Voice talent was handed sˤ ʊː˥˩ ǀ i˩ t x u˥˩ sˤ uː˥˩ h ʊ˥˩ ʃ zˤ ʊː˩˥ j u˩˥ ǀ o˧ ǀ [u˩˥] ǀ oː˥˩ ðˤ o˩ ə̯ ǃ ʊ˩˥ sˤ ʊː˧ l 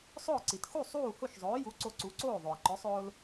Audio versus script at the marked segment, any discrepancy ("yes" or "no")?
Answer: no